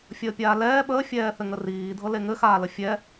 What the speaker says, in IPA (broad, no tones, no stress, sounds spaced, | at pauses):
fʲ əː pʲ aː l ɛː ɓ əː fʲ ɛː θ ɘ ŋ ə r iː dʱ ɤ l e ŋ ɘ x aː l ə fʲ ɛ